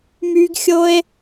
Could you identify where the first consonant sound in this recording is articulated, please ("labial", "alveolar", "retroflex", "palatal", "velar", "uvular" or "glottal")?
labial